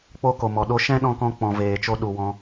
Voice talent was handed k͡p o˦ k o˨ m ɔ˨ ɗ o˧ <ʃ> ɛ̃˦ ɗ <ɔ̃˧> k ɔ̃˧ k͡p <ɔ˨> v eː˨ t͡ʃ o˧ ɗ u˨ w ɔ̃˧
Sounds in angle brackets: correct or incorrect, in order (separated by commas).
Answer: correct, correct, incorrect